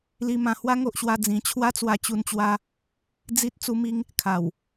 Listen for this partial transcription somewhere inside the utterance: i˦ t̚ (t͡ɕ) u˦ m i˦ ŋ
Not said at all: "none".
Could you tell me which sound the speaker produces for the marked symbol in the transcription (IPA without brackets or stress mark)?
t͡s